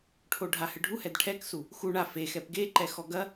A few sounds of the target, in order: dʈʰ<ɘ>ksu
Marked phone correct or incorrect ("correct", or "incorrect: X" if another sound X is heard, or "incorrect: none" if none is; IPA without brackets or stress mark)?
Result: incorrect: ɛ